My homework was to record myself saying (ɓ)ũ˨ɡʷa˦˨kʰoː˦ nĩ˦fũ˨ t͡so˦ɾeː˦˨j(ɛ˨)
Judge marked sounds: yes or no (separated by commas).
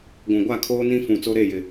no, no